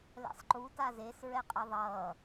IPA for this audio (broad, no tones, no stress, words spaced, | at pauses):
lɛ̰sˤǃu tazes ɹɛqʼeðˤʌː